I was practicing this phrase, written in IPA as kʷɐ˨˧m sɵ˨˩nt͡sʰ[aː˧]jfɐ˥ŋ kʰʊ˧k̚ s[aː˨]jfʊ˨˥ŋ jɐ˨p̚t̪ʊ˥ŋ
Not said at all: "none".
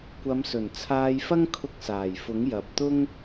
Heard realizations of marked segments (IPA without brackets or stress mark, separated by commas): aː˧, aː˨˩